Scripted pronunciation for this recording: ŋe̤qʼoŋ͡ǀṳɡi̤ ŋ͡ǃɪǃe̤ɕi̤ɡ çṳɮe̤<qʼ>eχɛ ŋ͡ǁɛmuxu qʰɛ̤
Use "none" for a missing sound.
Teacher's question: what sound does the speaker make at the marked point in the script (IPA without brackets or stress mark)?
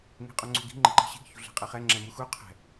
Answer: qʼ